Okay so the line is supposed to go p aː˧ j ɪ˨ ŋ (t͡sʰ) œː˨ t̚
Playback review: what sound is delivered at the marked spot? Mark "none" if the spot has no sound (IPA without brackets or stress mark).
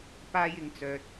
t͡s